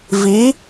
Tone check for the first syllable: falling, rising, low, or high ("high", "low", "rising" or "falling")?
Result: rising